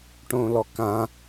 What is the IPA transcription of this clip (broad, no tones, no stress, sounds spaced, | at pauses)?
ʈ õ l ɔ k ã